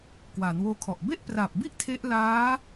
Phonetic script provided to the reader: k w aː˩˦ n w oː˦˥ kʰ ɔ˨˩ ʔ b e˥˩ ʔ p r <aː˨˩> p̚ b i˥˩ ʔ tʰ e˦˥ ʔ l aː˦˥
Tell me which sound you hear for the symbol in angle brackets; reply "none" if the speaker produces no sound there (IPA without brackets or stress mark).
aː˨˩